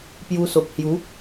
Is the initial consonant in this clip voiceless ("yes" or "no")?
yes